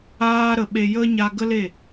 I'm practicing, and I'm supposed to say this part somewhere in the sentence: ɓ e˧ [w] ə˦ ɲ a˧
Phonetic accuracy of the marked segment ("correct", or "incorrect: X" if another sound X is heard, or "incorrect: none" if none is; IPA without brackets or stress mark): incorrect: j